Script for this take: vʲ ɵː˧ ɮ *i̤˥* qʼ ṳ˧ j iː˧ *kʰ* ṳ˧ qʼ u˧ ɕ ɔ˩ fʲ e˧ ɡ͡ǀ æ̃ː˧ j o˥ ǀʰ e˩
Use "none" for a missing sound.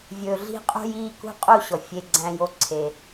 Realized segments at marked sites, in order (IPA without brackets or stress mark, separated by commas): i̤˥, k